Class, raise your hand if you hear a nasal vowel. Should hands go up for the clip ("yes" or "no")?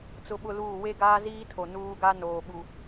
no